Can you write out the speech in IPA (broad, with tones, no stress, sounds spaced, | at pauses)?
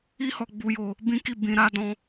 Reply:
i˦ h ɔ˧ ɡ͡b u˧ j o˧ | b ĩ˦ k i˦˨ b ĩ˧ ɾ a˦ d ɔ̃˦